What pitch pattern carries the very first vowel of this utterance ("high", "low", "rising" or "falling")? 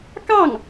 falling